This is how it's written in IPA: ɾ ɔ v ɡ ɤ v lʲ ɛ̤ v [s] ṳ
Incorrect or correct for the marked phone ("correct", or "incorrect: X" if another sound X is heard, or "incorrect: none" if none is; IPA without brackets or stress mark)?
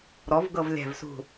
correct